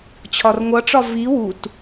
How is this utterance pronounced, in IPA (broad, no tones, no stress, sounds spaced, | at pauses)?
t͡ɕʰ ɒ r ŋʷ ʌ ʈ͡ʂ ɒ v i w u t